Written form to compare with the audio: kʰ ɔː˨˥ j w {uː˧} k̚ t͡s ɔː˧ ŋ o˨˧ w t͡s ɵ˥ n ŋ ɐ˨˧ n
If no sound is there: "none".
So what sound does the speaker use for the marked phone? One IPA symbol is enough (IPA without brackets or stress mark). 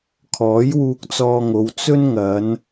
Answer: uː˧